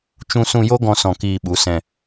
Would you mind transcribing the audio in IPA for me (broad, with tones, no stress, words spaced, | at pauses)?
t͡ʃũ˧sũ˧jo˦ ɡɔ̃˦sɔ̃˧ kiː˧ɓu˨˦ sɛ̃˧